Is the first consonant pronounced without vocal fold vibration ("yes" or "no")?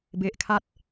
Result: no